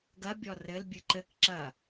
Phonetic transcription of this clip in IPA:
ɡɐbʲɔ rɘl bʲɨǃɘk ǁɐ

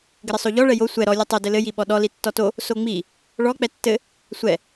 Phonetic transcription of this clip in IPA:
ɡɘɾɘsˤoʎɔ ɭɛjo sʷɛ ɾɔ lʲotˤo dɘlɘ jiɓɔɗɔ litːɔto | soŋ͡mi | ɭɔ k͡pɛtːɘ | sʷɛ

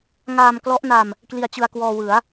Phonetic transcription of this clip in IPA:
ŋaː˧mklɔ˦˥ʔna˧m | kli˧a̯t͡ɕɯ˧a̯ kwɔː˧wɯ˩˦a̯

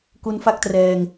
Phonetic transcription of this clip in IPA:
ku˦˥nfa˥˩k̚trɛː˧ŋ

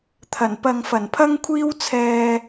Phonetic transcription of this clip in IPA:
t̪ʰɐ˨˩npɐ˧ŋ fɐ˨˩npʰɐ˥ŋkʷʰiː˥w t͡sʰɛː˧

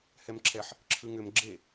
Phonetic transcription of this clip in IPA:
hɛmǁʰɛħ | ǁʰɯŋʏm ɡ͡ǁe

